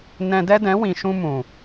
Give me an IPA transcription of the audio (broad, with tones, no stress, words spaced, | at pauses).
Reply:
nɛ̃˧dɛ˦dɛ̃˨˦wĩ˨ ʃũ˧ mũ˨